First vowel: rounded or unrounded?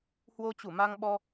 rounded